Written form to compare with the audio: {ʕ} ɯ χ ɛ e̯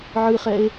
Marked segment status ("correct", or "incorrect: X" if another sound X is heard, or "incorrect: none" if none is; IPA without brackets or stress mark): correct